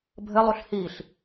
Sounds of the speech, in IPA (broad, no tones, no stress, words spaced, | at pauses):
bʱɘlˠuɬ hiɬ